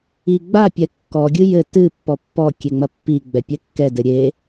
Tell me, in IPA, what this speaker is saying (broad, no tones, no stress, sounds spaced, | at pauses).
i ɡ͡b a pʲ ɛ kː ɔ ɡʲ ɨ j ɘ t ɨ pː ɔ pː ɔ kʲ e ŋ͡m ɐ pː i ɡ͡b ɛ pʲ ɛ kː ɛ d ɘ ɾʲ e